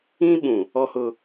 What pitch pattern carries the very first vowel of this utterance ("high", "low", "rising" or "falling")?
high